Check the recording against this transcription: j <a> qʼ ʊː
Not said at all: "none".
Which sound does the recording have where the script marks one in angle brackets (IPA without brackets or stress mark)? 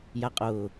a